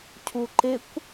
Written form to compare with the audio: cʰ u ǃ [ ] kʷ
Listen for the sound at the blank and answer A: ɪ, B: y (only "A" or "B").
A